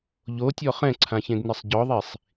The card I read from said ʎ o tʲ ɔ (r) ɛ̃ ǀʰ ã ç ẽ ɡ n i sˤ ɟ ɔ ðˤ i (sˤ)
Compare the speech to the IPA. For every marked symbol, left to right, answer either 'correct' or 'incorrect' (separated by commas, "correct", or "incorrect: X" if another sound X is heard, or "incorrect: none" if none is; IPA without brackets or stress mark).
incorrect: χ, correct